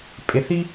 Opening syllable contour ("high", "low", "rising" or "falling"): low